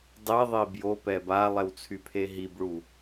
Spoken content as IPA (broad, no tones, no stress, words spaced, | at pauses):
dˤiðˤi bjopɛ balˠɛwt͡sʰypʰe ɦibɭu